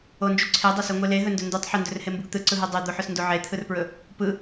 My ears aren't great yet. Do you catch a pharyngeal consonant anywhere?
yes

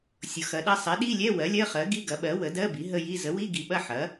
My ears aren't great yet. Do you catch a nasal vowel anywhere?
no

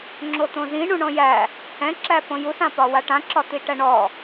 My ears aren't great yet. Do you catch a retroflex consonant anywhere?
yes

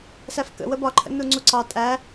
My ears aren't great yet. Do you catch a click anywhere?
yes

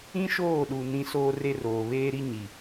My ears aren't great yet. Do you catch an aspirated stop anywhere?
no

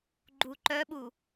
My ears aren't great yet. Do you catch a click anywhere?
yes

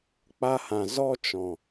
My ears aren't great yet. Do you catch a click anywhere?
no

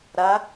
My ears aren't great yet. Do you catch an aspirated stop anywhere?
no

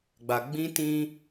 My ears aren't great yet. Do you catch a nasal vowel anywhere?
yes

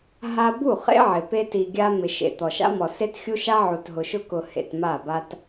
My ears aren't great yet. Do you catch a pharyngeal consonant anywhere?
yes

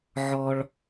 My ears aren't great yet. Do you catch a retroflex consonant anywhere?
yes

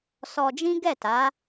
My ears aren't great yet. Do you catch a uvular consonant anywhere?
no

